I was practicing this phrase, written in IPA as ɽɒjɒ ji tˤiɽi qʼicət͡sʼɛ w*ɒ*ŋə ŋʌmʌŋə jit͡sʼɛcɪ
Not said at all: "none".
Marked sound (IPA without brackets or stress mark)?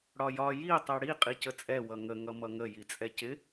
ʌ